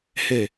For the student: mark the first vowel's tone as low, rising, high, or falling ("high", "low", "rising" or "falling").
low